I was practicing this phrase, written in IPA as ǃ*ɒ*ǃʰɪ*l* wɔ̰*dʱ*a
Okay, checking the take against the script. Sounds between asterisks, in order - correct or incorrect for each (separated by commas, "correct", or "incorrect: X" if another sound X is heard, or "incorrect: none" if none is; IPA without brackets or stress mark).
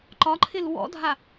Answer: correct, correct, correct